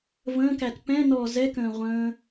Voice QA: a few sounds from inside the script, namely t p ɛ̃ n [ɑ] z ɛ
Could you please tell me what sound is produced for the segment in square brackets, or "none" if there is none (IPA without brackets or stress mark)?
ɔ